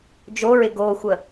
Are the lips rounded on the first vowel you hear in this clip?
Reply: yes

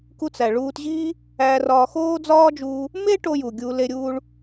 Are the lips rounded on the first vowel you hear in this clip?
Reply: yes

